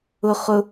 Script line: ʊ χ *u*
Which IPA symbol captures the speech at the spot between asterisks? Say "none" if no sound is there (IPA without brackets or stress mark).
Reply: ʊ